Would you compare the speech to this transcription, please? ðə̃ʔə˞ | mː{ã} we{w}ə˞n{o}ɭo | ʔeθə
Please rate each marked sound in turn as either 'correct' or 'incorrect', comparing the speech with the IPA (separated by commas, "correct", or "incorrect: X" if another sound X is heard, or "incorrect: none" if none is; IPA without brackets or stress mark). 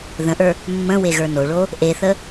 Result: incorrect: ə̃, incorrect: ɣ, correct